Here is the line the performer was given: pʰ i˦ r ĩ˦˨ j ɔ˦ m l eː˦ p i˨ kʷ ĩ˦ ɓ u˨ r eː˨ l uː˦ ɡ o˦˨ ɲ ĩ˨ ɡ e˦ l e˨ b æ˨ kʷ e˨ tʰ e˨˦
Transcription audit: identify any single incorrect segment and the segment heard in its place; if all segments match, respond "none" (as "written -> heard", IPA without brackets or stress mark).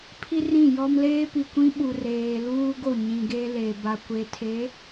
æ˨ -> a˨